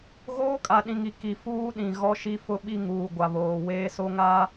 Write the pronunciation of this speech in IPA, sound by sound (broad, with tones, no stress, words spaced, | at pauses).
ɣoː˦kʼa˨ɗĩ˨ŋi˨ ki˨fuː˦ɗĩ˨ ɣɔ˦ʃi˦ fʊ˦ɓi˦ ŋuː˨ɡʷa˨βoː˨ weː˦so˦ŋa˦